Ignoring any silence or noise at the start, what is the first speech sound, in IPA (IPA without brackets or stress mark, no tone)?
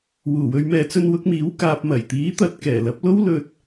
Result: w